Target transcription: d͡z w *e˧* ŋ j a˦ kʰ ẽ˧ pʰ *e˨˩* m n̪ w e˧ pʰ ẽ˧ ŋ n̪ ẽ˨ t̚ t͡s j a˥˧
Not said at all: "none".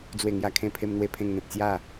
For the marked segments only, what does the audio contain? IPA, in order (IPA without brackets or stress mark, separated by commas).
e˥˧, e˧